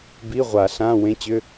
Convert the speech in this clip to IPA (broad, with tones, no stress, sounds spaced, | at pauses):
b i˧˥˧ ʁʷ a˨˩˦ ɬ ã˧˥˧ w ẽ˧˥˧ t͡ɕ ʏ˧˥˧